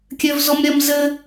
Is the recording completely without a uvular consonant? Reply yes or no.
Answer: yes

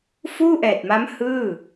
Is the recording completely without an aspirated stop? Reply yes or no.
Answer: yes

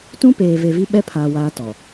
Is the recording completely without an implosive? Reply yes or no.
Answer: no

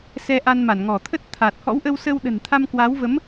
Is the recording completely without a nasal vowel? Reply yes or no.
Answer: yes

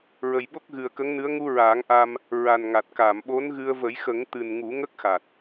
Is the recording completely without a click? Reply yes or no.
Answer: yes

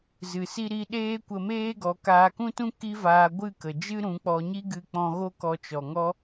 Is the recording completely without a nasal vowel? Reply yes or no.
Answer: no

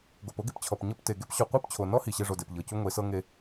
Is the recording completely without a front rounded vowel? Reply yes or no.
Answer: yes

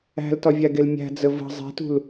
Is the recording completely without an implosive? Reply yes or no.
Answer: yes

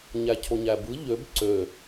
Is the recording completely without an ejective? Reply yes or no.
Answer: yes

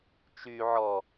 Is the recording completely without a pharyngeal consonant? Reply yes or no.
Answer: no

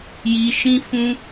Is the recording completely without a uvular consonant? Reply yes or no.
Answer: yes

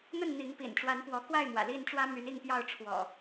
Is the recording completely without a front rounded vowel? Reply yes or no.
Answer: no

